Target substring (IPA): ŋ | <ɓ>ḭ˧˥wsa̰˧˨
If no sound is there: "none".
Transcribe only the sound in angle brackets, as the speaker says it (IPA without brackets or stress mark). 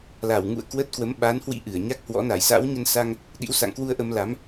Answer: ɗ